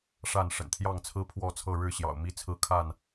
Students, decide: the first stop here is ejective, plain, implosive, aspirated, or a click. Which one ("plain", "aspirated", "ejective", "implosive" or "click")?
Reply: aspirated